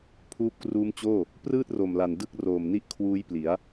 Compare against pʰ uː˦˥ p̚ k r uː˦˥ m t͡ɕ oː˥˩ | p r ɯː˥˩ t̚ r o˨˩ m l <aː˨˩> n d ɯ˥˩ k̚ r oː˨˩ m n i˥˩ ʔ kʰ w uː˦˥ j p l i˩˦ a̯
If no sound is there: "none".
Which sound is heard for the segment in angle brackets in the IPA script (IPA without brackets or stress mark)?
a˨˩